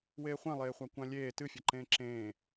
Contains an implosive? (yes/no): no